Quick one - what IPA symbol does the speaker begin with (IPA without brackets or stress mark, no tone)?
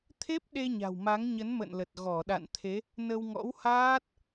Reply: t̪ʰ